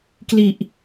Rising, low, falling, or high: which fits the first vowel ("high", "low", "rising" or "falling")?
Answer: low